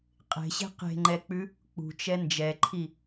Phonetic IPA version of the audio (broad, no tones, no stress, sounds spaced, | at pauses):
qʼ e̤ ɕ e̤ q e̤ ŋ͡ǃ ɛ k͡p ʉ | k͡p ṳ t͡ʃ ɛ n d͡ʒ ɛ ǃʰ i